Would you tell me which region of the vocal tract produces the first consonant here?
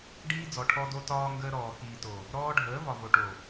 retroflex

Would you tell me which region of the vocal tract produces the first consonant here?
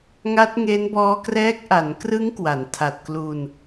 velum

